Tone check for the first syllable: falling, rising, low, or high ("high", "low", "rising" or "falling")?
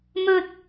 high